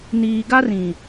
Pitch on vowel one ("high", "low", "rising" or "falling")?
low